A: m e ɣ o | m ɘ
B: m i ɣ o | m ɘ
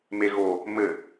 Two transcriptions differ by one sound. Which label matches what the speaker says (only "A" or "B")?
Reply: A